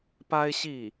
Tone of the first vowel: high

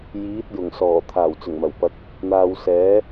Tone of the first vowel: rising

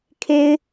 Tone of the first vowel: high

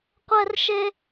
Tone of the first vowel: high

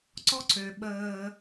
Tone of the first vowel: high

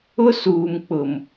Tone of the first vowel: high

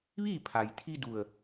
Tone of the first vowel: falling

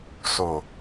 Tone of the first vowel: low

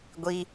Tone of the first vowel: high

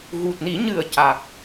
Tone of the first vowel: low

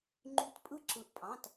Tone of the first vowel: rising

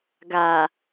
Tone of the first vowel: low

